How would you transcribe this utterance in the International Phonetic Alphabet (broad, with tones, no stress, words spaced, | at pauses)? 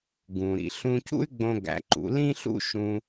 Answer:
ɡũ˩ɾḭ˧ ɬũ˧cṵ˥y̯ɡ͡bõ˧ ɡæ̰˩˧ǃṵ˩˧lĩ˥ɬṵ˥ ʃũ˧